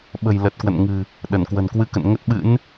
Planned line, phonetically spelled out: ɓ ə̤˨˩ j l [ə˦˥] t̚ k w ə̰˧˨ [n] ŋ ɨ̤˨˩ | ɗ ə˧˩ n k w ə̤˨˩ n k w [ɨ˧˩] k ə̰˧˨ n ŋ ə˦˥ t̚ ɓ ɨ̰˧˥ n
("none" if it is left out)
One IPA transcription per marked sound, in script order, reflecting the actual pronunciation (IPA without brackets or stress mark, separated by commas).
ə˨˩, n, ɨ˧